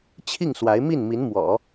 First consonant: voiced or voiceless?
voiceless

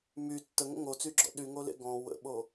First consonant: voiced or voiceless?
voiced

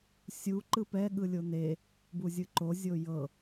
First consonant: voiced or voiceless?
voiceless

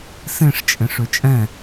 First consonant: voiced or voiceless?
voiceless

